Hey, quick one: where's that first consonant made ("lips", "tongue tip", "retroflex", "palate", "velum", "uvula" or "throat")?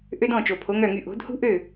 throat